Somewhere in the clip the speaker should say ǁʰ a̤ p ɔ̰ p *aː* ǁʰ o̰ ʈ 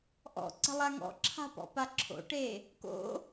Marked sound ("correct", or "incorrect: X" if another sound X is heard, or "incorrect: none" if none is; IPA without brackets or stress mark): incorrect: a